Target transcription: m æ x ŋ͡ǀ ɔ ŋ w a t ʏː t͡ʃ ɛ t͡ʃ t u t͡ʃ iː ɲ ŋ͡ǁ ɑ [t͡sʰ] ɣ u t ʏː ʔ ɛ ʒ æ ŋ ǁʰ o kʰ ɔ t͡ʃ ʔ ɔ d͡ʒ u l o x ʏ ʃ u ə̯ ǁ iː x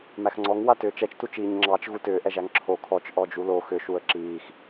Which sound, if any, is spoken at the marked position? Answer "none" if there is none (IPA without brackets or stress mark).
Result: t͡ʃ